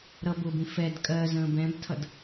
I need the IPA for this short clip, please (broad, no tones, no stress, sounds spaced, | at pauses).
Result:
ɾ ʌ b ʊ b ĩ f ɛ d kʼ ɜ z ə̃ː b ɛ̃ b tʰ ʌ d